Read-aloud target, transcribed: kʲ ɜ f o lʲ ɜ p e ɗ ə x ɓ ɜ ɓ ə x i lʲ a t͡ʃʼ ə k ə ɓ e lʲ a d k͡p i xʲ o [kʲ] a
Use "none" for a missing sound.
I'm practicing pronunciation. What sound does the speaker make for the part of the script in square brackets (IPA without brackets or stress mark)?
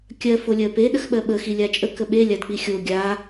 ɡʲ